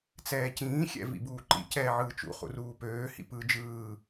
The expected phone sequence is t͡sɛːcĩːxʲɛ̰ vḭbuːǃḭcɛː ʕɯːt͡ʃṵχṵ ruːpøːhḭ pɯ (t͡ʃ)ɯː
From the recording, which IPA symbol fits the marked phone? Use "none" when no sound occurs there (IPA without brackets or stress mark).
d͡ʒ